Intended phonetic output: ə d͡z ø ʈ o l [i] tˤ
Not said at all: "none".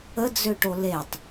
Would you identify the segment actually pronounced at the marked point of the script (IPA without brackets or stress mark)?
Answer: e